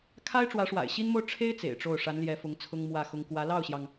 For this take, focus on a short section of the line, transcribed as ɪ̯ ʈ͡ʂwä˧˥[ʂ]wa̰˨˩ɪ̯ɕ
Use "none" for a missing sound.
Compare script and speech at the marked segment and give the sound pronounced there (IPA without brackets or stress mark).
ʂ